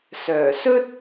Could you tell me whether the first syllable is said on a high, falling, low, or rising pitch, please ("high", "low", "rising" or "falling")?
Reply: low